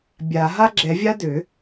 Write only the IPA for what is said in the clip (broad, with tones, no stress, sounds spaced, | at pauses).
bʲ a˨˩˦ ɦ a˥ ɡ͡ǁ ɛ˨˩˦ vʲ a˥ d ø˨˩˦